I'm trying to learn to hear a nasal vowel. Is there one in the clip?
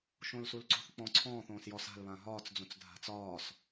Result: yes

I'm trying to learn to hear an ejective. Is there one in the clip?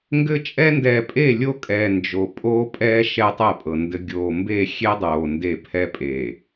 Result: yes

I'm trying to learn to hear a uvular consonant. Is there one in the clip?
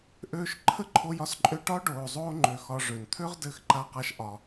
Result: yes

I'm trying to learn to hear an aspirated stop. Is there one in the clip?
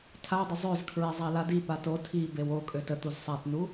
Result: yes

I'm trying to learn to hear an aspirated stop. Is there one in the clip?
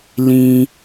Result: no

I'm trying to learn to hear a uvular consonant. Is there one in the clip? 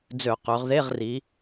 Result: yes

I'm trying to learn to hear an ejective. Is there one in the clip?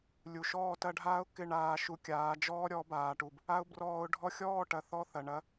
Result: no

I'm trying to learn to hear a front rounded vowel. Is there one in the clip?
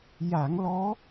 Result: no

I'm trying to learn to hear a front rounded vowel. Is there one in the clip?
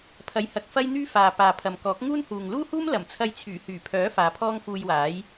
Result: yes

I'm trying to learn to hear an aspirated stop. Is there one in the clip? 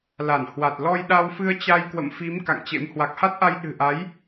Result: no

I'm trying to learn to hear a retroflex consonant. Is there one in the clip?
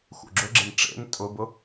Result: yes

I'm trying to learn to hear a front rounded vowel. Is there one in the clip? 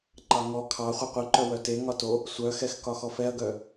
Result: yes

